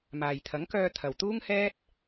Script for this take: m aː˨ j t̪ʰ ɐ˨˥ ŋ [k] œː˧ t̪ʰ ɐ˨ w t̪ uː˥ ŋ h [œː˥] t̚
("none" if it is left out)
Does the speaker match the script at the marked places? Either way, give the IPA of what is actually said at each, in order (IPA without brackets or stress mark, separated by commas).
k, ɛː˥